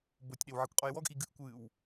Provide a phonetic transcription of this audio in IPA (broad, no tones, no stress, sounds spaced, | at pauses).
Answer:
b o tʲ ɗ e w ʕ i kʷ qʼ o j w ɔ ɡ ʔ i ɡ ɨ ʔ kʷ ɨː w